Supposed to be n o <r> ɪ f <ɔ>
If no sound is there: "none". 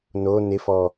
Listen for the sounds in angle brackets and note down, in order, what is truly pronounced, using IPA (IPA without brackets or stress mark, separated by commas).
n, ɔ